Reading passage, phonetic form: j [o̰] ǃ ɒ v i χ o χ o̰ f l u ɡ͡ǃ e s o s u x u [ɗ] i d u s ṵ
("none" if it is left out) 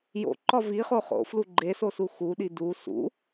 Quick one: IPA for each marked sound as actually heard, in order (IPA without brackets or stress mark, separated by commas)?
o̰, ɗ